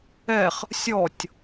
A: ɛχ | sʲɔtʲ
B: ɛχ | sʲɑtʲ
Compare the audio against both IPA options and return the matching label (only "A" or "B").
A